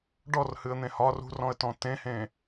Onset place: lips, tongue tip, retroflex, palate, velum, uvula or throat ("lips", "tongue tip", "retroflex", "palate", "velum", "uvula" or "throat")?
retroflex